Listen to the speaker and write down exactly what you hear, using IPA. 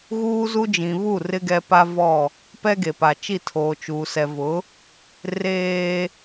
ɣuː˦zu˦ d͡ʒĩ˨βu˦˨ rɪ˦ɡɛ˦pa˦vɔ˦˨ | pɛ˦ɡe˨pa˨t͡ʃi˦˨ tʰoː˨t͡ʃuː˨sɛ˨vʊ˨˦ | reː˦

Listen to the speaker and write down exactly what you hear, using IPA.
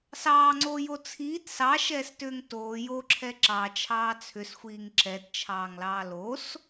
sɑːŋ͡ǀoːjo t͡sʰiːt sɑʃɛːstʏːŋ toː joǁʰɛ ǁɑt͡ʃʰɑː t͡sʰʏsxʷiːŋ ǁɛtt͡ʃʰɑːŋlɑː los

